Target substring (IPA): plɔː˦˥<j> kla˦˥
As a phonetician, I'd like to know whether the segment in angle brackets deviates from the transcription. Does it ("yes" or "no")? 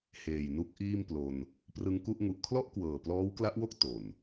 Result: yes